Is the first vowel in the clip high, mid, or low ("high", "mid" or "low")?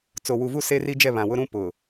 mid